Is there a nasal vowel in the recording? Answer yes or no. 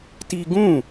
yes